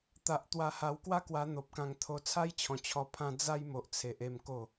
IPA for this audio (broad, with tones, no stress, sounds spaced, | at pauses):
t̪ a˨ ʔ t̪ w a˧ h a˧ w k w a˦ k w a˧ n̪ o˨ p̚ k ã˧ ŋ t̪ʰ o˧ t͡sʰ a˦ j t͡ɕʰ ɔ̃˨˩ t͡ɕʰ ɔ˧ pʰ ã˦ d͡z a˦ j m o˨ ʔ t͡sʰ e˨ ʔ e˥˧ m k o˥˧